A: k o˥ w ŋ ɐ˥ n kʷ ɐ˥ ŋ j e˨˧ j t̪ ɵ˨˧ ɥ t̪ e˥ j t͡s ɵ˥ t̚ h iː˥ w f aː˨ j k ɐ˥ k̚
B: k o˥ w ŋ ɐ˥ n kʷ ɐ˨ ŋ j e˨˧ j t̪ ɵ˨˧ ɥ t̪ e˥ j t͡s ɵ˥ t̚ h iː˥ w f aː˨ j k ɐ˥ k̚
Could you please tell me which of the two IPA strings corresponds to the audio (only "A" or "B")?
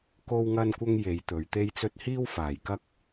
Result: A